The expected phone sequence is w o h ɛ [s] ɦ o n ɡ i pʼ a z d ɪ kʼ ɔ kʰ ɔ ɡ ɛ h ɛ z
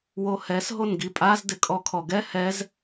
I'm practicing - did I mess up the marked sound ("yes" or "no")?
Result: no